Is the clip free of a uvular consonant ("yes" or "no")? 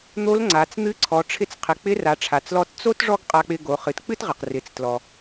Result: no